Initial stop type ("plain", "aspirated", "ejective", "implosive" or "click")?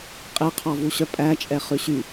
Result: ejective